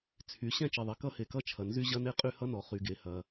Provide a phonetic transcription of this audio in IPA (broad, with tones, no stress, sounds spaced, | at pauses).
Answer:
t͡sʰ y˩ ɕ ɛ̃˥ t͡ʃ i˩ ðˤ e˩ k ʌ˥ h e˩ k ʌ˥ t͡ʃʰ ɐ˩ n z y˥ ʑ ɐ˥ n e˥ qʼ y˥ h ʌ˥ n ɔ˩ χ y˩ ɡ e˩ h ɐ˩